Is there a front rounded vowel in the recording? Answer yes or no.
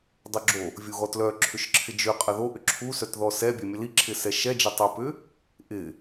yes